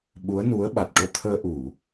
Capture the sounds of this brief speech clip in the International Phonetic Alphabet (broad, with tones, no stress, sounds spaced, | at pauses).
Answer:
ɓ u˧˥ ə̯ n u˧˥ ə̯ ɓ a˨˩ t̚ ʈ o˧ t̪ʰ əː˧ ʔ u˨˩˨